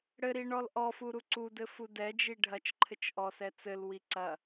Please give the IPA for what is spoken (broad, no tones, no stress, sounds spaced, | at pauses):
ɽ ɘ ɾ i ɳ ɔ l ʔ ɔ f u ɾ u ǀ u d ɘ f u d ɛ d͡ʒ i ɖʱ ɐ t͡ʃ ǃʰ ɘ t͡ʃ ʔ ɔ s ɛ t͡s ɘ l w i ǀ ɐ